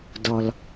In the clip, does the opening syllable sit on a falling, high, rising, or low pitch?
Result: low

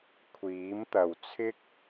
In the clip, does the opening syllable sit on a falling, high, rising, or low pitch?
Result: rising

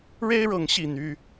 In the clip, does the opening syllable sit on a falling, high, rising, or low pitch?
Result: high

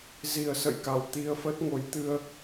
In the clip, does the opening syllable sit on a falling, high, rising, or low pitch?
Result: low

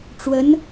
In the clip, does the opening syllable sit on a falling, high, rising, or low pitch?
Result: rising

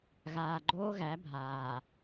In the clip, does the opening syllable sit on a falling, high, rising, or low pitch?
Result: low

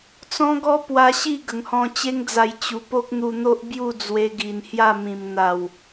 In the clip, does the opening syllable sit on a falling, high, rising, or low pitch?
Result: high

